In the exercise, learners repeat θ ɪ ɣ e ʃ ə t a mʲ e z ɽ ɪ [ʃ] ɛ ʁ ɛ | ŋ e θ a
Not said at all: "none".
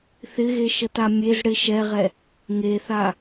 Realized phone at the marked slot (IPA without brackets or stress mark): ʃ